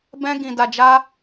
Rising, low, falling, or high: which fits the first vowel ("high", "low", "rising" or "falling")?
high